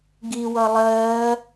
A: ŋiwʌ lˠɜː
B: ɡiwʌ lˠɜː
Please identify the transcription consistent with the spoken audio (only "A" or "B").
B